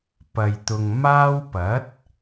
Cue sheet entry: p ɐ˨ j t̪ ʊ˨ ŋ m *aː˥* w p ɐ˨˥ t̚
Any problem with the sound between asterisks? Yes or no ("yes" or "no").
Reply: no